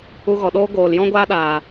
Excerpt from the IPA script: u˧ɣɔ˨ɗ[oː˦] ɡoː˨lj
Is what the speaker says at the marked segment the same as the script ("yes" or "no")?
yes